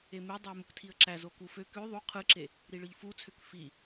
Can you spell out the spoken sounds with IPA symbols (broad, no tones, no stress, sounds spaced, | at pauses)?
e m e dˤ e ə̯ m u k tʰ i ə̯ ǁ æ z o k u f ø k ø ðˤ u qʰ ɯ ǁ e | ɾ i ɭ ɯ ʎ f u t͡sʰ ø k f i